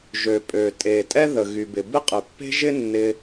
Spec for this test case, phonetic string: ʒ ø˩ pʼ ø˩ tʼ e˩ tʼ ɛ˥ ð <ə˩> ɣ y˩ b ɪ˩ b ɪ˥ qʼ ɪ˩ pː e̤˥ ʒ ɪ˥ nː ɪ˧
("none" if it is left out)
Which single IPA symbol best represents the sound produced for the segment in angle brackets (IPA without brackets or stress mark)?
ə˩